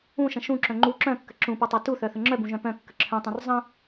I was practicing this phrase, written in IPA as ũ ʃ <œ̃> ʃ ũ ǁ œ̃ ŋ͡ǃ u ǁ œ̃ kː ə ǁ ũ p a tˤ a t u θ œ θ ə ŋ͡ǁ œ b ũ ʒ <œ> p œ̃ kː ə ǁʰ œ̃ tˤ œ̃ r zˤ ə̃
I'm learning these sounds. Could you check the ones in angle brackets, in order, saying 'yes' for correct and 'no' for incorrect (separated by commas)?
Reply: no, no